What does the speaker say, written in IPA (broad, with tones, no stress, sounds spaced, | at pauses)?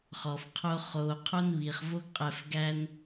χ ɔ˨ f qʰ o˦ χ o˧ qʰ o˦ n β i˨ χ v o˦ ɡ qʼ ɛ˧ f ɡ æ˦ n